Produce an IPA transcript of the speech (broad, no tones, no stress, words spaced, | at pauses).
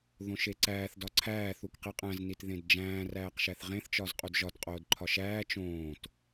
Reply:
ðõʃeǀæːθ dɒǀʰæː θukqiqʼæ̃z nitðẽdd͡ʒæ̃ː ræːqʃæθʁẽθ t͡ʃɒzqʼudʒɒt qʼoːdǃʰɒʃæː t͡ʃõːt